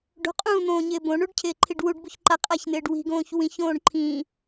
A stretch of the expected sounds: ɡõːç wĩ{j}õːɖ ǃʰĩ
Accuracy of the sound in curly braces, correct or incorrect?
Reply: incorrect